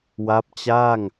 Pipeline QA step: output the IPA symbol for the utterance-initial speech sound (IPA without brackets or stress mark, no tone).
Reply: w